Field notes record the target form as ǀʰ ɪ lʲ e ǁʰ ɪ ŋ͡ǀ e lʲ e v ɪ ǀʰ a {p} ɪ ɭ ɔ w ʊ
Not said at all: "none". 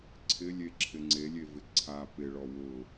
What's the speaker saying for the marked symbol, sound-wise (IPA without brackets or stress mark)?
p